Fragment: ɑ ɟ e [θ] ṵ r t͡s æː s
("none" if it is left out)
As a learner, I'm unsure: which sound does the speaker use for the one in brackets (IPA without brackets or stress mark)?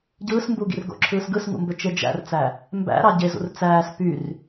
z